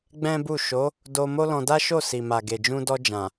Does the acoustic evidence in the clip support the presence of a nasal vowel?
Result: yes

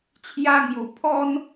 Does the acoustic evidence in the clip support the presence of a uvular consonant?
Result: no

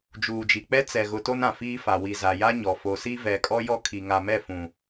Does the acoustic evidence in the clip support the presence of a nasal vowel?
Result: yes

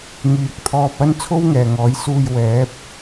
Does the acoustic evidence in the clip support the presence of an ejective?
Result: no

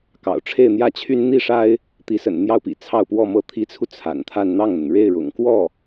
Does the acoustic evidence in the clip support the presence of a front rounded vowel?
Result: yes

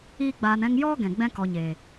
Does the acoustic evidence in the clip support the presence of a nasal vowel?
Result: yes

